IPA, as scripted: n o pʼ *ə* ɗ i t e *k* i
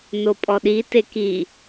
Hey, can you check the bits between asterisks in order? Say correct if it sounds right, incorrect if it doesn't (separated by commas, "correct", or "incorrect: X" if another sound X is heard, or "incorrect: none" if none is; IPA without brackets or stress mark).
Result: incorrect: ɔ, correct